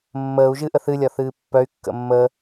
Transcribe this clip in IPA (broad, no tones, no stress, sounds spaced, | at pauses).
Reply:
mː əː u̯ ʒ ɨ ʔ ə θ ɨ lʲ ɒ θ ɨː pː œ y̯ kː ə̰ mː əː